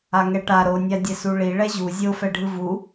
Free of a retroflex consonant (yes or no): no